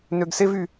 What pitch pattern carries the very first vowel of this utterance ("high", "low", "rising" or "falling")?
low